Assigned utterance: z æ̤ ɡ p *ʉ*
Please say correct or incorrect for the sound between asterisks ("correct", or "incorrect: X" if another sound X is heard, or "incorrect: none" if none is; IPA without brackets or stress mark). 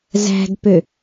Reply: incorrect: ø